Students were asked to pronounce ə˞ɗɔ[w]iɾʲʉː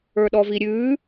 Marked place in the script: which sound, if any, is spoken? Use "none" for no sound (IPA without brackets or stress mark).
v